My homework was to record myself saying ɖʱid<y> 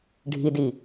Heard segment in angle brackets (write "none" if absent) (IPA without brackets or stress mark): i